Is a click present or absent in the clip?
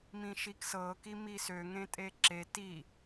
present